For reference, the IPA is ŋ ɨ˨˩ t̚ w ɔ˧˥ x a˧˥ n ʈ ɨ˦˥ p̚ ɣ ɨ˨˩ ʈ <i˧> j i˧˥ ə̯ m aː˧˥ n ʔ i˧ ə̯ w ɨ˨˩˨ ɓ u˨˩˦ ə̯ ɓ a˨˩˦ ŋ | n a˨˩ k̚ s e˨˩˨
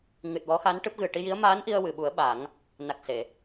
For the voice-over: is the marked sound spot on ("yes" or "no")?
yes